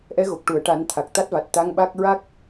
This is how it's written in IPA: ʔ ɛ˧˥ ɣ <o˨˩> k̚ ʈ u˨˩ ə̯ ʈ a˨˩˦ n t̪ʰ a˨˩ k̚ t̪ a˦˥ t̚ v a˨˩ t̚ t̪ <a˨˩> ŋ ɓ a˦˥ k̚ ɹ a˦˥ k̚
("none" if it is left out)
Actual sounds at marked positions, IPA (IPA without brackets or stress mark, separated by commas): o˨˩, a˧˥